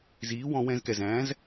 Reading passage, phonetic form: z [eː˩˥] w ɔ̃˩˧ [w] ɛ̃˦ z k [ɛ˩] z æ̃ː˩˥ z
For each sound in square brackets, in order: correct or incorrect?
incorrect: iː˩˥, correct, correct

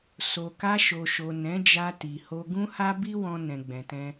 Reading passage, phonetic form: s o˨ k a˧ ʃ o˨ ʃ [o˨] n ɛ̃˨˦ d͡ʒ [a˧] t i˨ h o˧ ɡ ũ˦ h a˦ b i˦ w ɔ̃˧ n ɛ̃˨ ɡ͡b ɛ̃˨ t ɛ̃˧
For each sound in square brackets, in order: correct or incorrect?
correct, correct

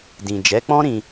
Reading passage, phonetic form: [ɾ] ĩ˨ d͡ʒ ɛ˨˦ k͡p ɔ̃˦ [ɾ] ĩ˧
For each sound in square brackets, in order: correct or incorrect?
incorrect: d, correct

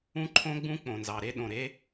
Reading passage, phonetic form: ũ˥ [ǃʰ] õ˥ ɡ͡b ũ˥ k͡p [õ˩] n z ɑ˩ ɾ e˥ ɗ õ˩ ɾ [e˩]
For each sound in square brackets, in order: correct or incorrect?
correct, correct, incorrect: e˥

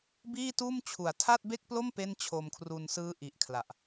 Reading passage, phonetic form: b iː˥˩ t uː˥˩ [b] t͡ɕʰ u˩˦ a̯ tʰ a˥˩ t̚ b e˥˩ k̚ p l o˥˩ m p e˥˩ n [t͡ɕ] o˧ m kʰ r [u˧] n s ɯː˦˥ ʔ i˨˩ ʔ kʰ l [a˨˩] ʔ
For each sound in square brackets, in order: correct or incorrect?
incorrect: m, incorrect: t͡ɕʰ, correct, correct

